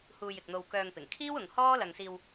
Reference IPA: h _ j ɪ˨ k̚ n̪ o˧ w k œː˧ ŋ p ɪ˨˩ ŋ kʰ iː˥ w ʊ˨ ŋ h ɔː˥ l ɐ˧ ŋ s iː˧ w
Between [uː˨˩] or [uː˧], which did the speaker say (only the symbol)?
uː˧